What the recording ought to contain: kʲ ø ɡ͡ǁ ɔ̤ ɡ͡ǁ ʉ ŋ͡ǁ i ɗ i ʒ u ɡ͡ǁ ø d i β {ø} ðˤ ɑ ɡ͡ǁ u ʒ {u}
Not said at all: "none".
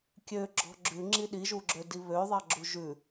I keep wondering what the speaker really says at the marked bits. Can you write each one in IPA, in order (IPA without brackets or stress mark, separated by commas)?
ø, ʉ